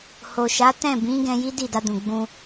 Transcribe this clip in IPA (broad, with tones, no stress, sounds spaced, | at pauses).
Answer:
h o˨ ʃ a˨˦ t ɛ̃˦˨ b ĩ˨˦ ɡ ɛ̃˧ j i˦ d i˦˨ d a˧ d ũ˨ ɡ͡b ũ˧